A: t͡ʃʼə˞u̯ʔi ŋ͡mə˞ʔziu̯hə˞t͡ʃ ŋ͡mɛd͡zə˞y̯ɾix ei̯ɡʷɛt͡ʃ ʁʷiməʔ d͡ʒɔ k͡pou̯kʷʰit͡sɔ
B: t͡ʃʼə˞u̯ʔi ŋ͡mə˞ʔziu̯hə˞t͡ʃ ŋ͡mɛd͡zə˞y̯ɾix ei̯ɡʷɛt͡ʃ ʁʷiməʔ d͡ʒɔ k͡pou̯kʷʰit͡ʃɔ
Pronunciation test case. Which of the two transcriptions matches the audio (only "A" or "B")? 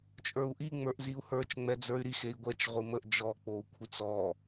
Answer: A